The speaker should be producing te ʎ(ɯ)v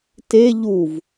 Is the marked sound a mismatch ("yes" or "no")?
yes